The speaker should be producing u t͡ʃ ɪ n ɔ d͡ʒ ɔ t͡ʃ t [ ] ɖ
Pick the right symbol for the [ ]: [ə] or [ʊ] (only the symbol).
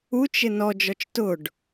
ʊ